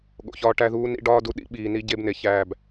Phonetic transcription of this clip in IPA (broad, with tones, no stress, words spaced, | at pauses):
ɠo̰˨çɒː˦ʈæ˦ ðuː˦nḭ˦ɖɒː˦ du˦ɗḭ˦ɓiː˨ ni˦ɟe˦bne˨ çæː˦˨b